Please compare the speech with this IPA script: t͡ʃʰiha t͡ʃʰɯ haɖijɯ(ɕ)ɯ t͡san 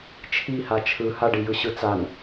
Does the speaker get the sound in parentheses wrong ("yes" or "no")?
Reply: no